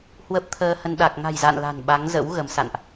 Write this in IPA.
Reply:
hwə˦˥p̚t̪ʰəː˧hə˧n ɗa˨˩k̚ ŋa̤˨˩jza̰˧˨n la̤˨˩nɓa˨˦ŋzə̰˧˥w ɣə˨˦msa̰˧˨nʔ

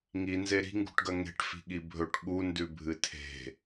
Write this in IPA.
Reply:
ŋinze ɾi̤ŋɡṳʈɡɐ ŋe̤ʈ fi̤ɠibʱɵʈ ɠu ndʉbʱɨtʰe̤

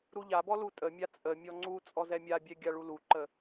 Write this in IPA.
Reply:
ɾuʎabɔ lutʼəmʲa t͡sʼə mʲɔŋ͡ǀut͡sʼɔ zɛmʲabʲɛ ɡʲaɭuluǃə

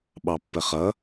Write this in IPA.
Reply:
ɓɑpːəχʌ

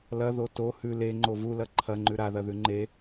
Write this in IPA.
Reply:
lɐðo to hʉ leŋ͡ǃo vulɐ ǃʰɐŋ͡ǃʉ ɾaðɐðʉ ŋ͡ǃe

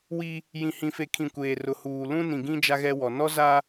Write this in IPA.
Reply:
wi˦ | jĩ˨hĩ˨fe˨kʰĩ˨ kʷeː˨rʊ˨huː˨ lũ˦nĩ˨ɡĩ˦ d͡ʒa˦ɣɛ˦wɔ˨ nɔ˦za˦

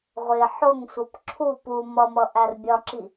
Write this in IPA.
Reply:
ʁʷɪ ħʊŋsʷəp ǁʰu pu mʌmʌ ʔærbʲɒǁi

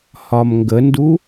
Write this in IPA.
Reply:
hɒmŋɡəndu

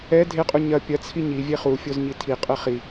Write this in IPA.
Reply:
ɛ dʱeqʼu ɲɐ pʲɐt͡sʰi ɲi vʲeχufʲoz ɲitʰiqʼɛ χi

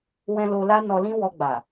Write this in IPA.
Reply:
wɛ̃˧ lo˧la˦nɔ˧ lĩ˦wɔ˧ ɡ͡ba˨

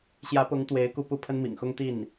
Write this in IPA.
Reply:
ɕjä˧˥pʊ˧˥ŋ t̪we˧˥ɪ̯ku˧ pu˥˩pʰə˥nmḭ˨˩ŋxʊ˥ŋ t̪i˥˩n

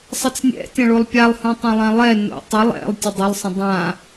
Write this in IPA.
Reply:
sˤət͡snʲɛ̰ tʲɐ̃ɭolˠpʲalˠ hũtˤõlˠãlˠɛ no̰tˤə lˠɛ̰lˠ tʲʊdˤʊlˠ sˤə̃dˤã

